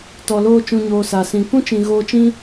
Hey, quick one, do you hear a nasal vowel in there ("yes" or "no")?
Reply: yes